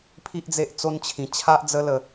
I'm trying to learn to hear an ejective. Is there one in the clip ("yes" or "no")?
no